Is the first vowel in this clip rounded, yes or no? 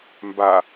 no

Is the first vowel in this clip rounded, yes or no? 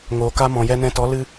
yes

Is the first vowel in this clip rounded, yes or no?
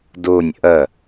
yes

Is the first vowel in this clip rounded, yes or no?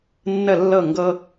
no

